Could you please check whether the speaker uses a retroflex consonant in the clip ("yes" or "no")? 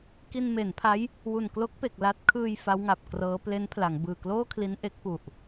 no